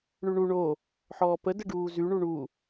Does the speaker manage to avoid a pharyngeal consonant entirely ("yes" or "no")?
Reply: no